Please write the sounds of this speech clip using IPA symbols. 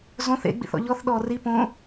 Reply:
z õ θ ḛ ɡ͡b ḭ θ ɔ̰ ʎ ɔ θ ɗ ɔː r i p õ

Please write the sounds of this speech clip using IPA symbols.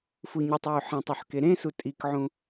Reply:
f u ɲ y tˤ j y ħ ẽ tˤ u ħ k e ɾ ẽ s u tʼ i k ʕ ũ

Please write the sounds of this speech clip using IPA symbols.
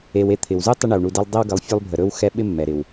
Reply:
e˨ w e˦ t̪ʰ ɪ˩ w z u˥ tˤ ə˦ ɳ ɛ˩ w ɳ u˨ d e˦ lˠ dˤ ɪ˦ w ɡ ə˨ lˠ fʲ u˦ lˠ bʱ ə˨ ɾ ɵ˦ w x ɛ˦ ɓ ɪ˥ mː ɛ˩ ɾ ɪ˩ w

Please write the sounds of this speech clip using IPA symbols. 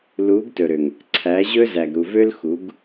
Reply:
l u˨˦ ɡ t ɵ˨ ɾ ø˨ ŋ | ǀʰ æ˨˦ ʑ ɵ˦ z æ˨ ɡ ɾ u˨ v ø˦ l x u˨˦ ɡ

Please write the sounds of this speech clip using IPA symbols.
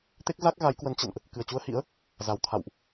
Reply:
t̪ e˦˥ k̚ z a˦˥ k̚ ɣ a˨˦ j k w ə˨˦ n t͡ɕ ə̰˧˨ n ʔ | k ɨ˨˩ ə̯ t͡ɕ u˧ ə̯ h ḭ˧˥ ə̯ | z a˨˩ w t̪ʰ a̰˧˨ w ʔ

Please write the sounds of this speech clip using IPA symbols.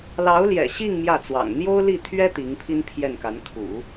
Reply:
l ɑ˧˥ ʊ̯ l j ɛ̰˨˩ ɕ i˥˧ ŋ m j ä˥˩ t͡s w ɑ̰˨˩ ŋ n̪ j o˥ ʊ̯ l i˥˩ t̪ʰ ɥ ɛ˥ t̪ i˧˥ ŋ pʰ i˥ n pʰ j ɛ˥˩ n k a˧˥ n kʰ ṵ˨˩˦

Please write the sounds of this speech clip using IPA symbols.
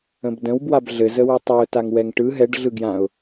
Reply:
ə̃ b d ə̃ w b w a b ɮ ɘ z ə w ɯ tˤ ɛ ʊ̯ t a ŋ w ɛ ŋ ʈ ɯ ɦ ɛ ɖ ɮ ɯ ɡ j ã ʊ̯

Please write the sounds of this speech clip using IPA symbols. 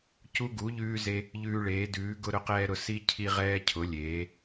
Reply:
c u˧ ɡ u˩˧ ʎ ʉː˧ z e˧ | ʎ ʉː˧ ɭ eː˩˧ d ʉː˩˧ ɡ ʊ˧ ɾ ʊ˧ q ɛː˧ ɾ ʊ˩˧ s i˧ cʰ i˧ ʁ ɛː˧ cʰ ʊ˩˧ lʲ eː˩˧

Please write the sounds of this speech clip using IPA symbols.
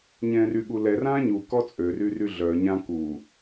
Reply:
ɲ ɛ̃ r y ɠ u l ɛ r ã ɲ u k ɔ t͡sʼ ø r y r y ɮ œ ɲ ã k u

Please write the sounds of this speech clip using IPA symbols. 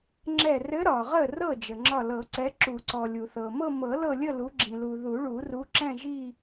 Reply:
ŋ͡ǁ ɛ˧˩ r ɘ˨˦ ɾ ɒ˩ ʁ ə˧˩ r ɤ˧˩ d͡ʒ ə˩ ŋ͡ǁ ɒ˧˩ l ɤ˨˩˦ ǀ ɛ˨˦ ǁ u˨˩˦ ǀ ɔ˩ lʲ u˩ θ ɤ˩ m ɤ˥˧ m ɤ˨˩˦ l ɤ˥˧ lʲ ə˥˧ l u˨˦ ɡ͡ǁ ĩ˩ l u˩ ð u˨˩˦ ɭ u˨˩˦ r u˨˦ ǁ ɛ̃˥˧ ʒ i˥˧

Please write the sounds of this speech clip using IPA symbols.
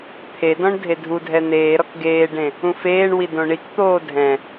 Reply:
t̪ʰ e d ɔ̃ ɳ dʱ e dʱ u dʱ ɛ n̪ eː ɾ ɔ k ɡ eː ɖ ẽ | ũ f eː ɳ w i d õ ɳ i k t̪ oː dʱ ɛ̃

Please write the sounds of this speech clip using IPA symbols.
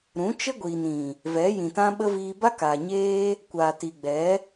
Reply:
ɾ ũ˨˦ t͡ʃ ə˦ ɡʷ iː˨ n ĩ˨ | v ɛ˨˦ j ĩ˨ t ã˦ ɓ ə˦ v iː˧ b a˦ k a˨ ɲ eː˦ | kʷ aː˨ t i˨ ɡ͡b ɛ˨˦

